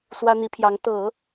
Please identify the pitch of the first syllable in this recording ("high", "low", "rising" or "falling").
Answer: high